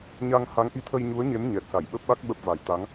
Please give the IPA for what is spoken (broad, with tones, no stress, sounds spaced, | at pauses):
ɲ a˧ ŋ h a˨˦ ŋ ʔ i˨˦ t̪ʰ ə˧ j ɲ u˨˦ ə̯ ɲ e˨˦ m ɲ ɛ˨˩ t̚ s a˧˩ j ɓ ə˦˥ p̚ ɓ a˦˥ k̚ ɓ ə˦˥ p̚ v a˨˩ j t̪ a˨˦ ŋ